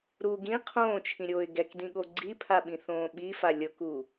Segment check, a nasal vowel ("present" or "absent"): present